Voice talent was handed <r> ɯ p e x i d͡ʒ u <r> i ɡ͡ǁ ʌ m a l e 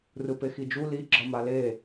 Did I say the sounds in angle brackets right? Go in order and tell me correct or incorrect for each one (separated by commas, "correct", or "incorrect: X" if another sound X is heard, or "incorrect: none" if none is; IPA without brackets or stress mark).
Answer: correct, incorrect: l